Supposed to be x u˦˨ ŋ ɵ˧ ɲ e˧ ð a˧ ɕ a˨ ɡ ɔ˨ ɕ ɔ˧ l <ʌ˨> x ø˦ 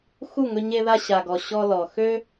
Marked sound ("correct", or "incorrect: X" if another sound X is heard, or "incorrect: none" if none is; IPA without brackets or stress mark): incorrect: ɔ˨